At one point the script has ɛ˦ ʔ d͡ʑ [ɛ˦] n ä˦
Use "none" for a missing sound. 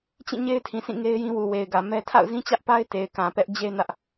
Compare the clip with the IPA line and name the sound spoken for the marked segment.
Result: e˦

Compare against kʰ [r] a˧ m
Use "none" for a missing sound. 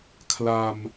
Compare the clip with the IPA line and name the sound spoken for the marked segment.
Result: l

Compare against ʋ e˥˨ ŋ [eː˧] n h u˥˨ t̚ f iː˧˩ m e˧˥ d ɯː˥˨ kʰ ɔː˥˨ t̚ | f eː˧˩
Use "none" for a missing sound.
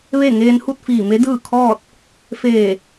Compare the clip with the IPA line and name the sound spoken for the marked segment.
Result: eː˧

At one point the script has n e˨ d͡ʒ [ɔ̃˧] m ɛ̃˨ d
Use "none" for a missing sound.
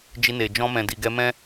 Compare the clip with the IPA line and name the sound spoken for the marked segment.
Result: ɔ̃˧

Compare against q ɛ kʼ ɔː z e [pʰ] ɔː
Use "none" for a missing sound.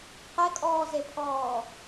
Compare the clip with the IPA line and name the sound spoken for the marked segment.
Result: pʰ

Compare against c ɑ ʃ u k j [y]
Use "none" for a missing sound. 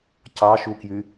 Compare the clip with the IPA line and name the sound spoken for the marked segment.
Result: y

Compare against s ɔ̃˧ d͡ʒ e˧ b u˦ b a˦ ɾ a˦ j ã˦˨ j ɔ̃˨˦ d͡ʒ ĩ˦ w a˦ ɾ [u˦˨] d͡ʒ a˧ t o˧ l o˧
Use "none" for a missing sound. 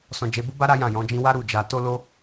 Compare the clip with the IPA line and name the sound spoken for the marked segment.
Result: u˦˨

